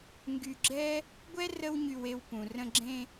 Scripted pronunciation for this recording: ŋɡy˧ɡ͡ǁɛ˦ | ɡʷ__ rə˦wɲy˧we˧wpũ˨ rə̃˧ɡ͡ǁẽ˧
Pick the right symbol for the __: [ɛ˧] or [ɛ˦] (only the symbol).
ɛ˦